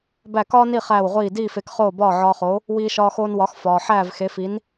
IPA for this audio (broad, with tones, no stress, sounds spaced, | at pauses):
b æ˥˩ k ɒː˥ n i˥˩ χ æː˥˩ w ʁʷ iː˥˩ d iː˥˩ f e˩˥ k χ oː˥˩ b ɒː˥˩ ʕ ɒː˧ χ o˩˥ | w iː˧ ʃ ɒː˧ x oː˧ n w ɒ˩˥ x f ɒː˩ ħ æː˥˩ v x e˩˥ f i˩˥ n